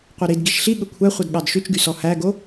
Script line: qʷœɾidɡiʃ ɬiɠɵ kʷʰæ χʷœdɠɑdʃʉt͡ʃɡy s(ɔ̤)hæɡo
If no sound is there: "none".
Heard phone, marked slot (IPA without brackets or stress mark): ɔ